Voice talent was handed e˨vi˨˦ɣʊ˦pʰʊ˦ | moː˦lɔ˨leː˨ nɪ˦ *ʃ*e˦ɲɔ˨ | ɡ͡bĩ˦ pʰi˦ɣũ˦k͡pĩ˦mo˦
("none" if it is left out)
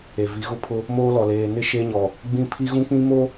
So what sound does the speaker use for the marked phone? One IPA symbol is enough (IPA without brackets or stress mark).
ʃ